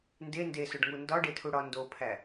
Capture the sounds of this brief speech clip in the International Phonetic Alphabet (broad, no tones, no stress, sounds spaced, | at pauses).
n d e n d e s o ɖ ŋ u n d ɒ ɖ e tʰ u ɽ ɒ n d o pʰ æ